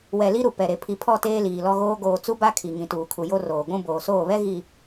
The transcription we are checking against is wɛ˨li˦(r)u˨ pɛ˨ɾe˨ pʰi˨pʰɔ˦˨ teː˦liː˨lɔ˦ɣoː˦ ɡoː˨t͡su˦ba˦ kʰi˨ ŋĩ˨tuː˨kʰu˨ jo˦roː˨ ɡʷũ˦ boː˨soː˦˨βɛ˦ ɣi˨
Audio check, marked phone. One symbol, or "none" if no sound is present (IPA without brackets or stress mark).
ɾ